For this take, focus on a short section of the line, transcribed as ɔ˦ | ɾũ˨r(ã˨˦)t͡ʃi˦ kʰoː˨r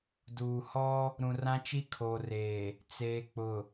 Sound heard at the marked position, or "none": ã˦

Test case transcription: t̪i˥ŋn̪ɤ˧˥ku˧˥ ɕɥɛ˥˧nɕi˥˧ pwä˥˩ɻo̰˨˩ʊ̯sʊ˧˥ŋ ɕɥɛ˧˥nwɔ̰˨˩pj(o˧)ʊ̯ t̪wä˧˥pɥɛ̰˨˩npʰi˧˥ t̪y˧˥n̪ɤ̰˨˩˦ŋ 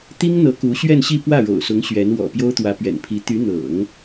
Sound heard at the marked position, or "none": o˥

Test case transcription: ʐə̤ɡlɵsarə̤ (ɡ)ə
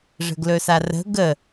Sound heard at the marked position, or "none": ɡ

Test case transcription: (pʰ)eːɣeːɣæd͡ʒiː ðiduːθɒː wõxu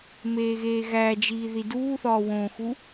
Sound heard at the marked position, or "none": m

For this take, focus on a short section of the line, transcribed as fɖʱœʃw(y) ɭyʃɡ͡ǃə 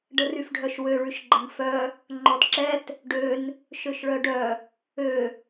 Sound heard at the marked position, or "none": ø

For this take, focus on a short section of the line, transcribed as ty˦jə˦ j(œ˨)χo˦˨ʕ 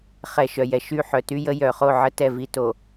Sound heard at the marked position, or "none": œ˨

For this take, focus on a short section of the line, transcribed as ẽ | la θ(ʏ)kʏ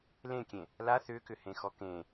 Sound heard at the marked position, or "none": ʏ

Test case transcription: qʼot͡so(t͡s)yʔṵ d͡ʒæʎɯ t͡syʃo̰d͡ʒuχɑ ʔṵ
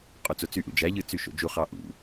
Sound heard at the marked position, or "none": t͡s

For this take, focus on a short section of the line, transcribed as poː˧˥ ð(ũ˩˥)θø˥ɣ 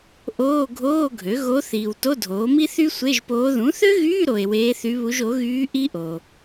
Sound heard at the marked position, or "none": ũ˩˥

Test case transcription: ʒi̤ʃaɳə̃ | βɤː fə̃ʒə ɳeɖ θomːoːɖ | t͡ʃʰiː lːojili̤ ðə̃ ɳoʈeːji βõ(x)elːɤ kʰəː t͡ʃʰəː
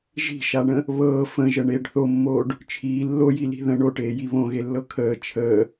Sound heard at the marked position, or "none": ɣ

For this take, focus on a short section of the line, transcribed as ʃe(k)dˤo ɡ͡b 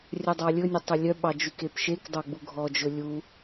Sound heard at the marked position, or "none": k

